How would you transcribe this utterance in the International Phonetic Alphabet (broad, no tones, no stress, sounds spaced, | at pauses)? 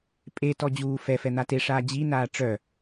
pʼ e t ɔ d͡ʑ uː f ɛ f ɛ n̪ a t e ʂ aː d͡ʑ i n aː ʈ͡ʂ œ